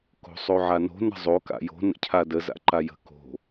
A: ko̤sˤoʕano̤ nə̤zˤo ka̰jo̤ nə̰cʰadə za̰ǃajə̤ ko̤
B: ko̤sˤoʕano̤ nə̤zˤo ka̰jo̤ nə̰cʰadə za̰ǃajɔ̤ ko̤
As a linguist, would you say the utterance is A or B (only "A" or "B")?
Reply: A